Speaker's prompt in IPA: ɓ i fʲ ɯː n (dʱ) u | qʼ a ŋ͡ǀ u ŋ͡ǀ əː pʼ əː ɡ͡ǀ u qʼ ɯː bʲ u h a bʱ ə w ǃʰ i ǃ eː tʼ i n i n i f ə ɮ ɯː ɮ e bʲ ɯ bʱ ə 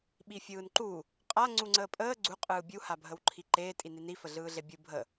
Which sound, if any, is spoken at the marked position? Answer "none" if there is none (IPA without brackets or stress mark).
ǃ